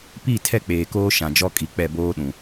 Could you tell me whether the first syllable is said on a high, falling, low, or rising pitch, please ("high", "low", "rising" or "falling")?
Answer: falling